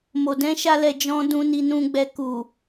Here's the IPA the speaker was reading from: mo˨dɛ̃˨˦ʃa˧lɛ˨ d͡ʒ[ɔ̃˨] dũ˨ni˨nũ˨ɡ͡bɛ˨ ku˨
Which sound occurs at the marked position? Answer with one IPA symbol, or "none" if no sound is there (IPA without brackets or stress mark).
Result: ɔ̃˨